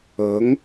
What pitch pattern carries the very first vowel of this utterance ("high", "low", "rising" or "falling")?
rising